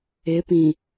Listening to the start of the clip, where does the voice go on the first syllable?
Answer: rising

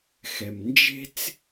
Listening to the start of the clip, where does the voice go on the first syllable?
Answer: low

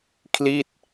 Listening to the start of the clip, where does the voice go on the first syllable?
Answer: falling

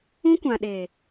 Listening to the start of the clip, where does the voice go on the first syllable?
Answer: high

